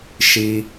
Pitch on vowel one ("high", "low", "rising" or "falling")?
low